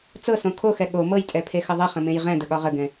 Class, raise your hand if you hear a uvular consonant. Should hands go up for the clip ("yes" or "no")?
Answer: yes